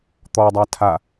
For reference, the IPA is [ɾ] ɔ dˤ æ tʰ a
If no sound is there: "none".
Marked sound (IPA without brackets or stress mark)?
t̪